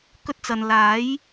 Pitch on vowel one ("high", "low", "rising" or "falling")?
high